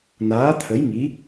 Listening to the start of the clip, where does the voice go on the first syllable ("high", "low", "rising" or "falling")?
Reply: rising